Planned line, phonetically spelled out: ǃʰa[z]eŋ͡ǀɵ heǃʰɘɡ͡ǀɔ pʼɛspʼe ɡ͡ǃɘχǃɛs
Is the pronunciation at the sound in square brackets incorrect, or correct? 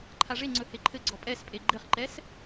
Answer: incorrect